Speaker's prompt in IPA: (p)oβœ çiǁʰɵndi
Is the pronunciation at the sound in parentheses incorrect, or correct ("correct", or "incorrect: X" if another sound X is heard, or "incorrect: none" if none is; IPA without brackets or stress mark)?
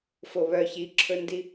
incorrect: f